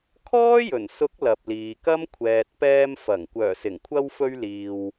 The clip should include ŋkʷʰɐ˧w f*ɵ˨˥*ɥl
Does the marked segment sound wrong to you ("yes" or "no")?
yes